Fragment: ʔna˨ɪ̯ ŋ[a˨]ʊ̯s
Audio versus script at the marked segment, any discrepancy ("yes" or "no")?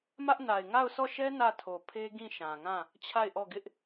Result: yes